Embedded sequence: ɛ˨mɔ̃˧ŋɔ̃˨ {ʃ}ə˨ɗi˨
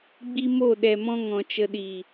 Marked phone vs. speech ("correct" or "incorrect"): incorrect